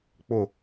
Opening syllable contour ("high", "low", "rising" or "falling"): falling